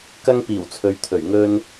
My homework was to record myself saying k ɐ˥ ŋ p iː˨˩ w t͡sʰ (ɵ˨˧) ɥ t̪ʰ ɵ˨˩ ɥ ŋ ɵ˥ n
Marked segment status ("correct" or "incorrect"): correct